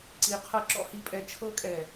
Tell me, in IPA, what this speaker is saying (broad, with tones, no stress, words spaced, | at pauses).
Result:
ǀi˧qʰɤ˦ ǁɔ̰˦hi˧pʼɛ˧ t͡ʃʰɤ˦kʼɛ˨